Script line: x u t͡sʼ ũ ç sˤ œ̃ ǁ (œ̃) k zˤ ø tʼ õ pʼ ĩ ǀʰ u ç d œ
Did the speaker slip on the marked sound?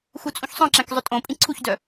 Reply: yes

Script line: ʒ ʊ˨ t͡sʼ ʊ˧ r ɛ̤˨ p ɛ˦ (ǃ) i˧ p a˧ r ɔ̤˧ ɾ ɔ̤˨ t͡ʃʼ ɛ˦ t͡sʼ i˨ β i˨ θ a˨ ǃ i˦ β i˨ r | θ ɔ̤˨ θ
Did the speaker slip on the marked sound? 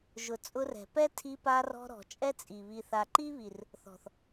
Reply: yes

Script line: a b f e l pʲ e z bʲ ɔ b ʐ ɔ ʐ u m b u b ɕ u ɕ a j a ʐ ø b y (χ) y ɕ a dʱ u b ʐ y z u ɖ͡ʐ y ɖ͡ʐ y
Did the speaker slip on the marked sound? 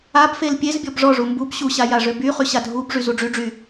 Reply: no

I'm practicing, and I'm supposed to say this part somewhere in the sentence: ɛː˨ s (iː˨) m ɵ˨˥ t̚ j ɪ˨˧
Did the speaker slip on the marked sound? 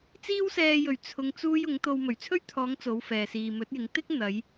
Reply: no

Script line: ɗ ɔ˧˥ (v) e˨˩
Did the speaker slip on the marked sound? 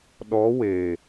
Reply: yes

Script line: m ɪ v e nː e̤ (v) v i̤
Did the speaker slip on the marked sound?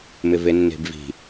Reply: yes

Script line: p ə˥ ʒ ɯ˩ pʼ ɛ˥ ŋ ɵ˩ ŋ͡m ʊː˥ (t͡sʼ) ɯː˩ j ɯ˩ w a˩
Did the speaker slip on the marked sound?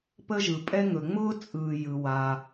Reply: no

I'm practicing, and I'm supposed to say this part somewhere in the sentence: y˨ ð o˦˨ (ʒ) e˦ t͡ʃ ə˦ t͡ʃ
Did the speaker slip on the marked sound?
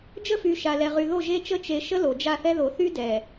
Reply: no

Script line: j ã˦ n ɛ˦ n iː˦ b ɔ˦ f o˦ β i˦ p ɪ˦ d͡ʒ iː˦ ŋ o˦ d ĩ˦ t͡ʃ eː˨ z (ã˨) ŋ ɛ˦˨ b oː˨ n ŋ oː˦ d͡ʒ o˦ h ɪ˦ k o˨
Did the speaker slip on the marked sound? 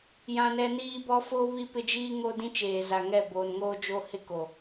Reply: yes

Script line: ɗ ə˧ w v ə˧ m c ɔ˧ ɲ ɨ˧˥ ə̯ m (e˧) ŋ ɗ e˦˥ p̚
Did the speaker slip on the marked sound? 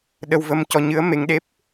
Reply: no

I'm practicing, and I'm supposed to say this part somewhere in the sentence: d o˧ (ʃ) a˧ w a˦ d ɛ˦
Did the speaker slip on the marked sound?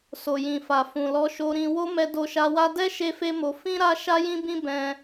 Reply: no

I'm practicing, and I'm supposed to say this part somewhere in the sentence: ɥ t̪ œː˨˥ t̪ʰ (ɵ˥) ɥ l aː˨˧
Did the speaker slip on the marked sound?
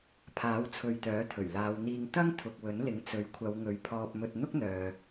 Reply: yes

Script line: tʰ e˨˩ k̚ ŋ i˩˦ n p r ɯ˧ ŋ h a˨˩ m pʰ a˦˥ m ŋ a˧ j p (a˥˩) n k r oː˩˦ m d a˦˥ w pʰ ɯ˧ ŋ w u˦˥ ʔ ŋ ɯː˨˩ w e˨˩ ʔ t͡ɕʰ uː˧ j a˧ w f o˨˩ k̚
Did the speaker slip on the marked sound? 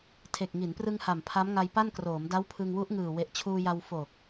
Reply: no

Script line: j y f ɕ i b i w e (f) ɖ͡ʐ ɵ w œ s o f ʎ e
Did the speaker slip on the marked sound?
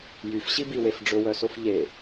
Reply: no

